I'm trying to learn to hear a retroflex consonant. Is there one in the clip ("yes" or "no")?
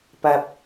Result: no